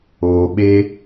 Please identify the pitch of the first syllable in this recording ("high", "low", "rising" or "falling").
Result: low